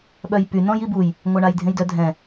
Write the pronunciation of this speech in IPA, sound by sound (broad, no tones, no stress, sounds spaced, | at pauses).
ɓ œ j p y n ɔ̃ j i b u j | ŋʷ a ɳ a j dʱ ẽ j d œ dʱ ɛ̃